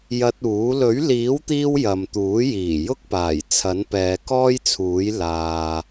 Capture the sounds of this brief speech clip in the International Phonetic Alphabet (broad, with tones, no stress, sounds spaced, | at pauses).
j ɐ˧ t̚ uː˨˥ l ɵ˨˥ ɥ l iː˨˥ w t̪ iː˧ w j ɐ˨ m t̪ uː˨˥ j iː˨˩ j ʊ˥ k̚ p aː˨˩ j t͡sʰ ɐ˨˥ n p ɛː˨˧ k ɔː˥ j t͡sʰ uː˨˥ j l aː˨